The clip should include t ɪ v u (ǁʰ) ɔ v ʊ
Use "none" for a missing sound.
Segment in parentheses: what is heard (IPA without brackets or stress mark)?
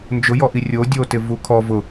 kʰ